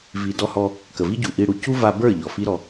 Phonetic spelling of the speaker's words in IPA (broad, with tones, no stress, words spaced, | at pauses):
vi˨dɔ˧hɔ˧ | kə˨vi˦ɟu˨ ʔi˧ ɽu˨ cu˦va˧bə˞˦˨ ʎɔ˨fi˦ɾɔ˧